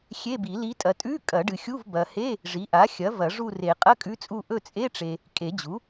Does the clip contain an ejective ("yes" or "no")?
yes